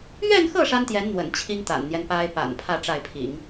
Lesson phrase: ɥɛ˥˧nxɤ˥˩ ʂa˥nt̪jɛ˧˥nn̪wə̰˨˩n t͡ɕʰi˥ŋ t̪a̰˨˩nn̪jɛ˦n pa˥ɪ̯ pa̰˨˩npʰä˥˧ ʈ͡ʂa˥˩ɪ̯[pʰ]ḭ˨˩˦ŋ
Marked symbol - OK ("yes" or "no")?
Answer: yes